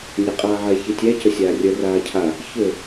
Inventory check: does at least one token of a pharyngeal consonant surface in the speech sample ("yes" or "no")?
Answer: yes